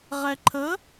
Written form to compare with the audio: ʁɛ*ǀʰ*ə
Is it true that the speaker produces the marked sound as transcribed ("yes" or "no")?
no